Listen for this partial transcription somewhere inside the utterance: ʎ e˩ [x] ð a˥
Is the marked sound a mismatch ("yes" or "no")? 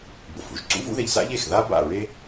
no